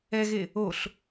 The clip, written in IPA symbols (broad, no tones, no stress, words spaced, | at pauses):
ɛɣe | oɬ